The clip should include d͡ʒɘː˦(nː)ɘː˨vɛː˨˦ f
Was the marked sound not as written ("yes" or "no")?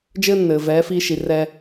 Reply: no